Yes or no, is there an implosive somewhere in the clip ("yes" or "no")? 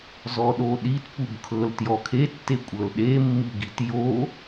yes